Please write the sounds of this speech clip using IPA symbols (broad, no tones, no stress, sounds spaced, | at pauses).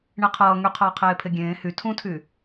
ɳ e qʰ ʌː ŋ y qʰ ʌː qʰ eː pʰ e ɡʲ ẽː h y tʰ ũ tʰ y